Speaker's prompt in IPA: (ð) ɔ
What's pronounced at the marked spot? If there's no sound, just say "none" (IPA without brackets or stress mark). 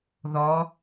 ð